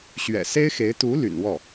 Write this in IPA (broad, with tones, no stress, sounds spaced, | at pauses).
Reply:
ɕ ɥ ɛ̰˨˩ s e˥ ɪ̯ x e˧˥ ɪ̯ t̪ u˧˥ l y̰˨˩ n w ɔ˥˩